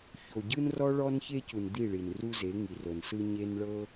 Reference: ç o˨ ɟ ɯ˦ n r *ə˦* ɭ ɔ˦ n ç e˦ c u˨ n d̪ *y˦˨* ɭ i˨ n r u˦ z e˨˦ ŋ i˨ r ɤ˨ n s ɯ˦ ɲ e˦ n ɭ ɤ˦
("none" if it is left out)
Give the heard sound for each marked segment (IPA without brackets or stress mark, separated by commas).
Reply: ɔ˦, i˦˨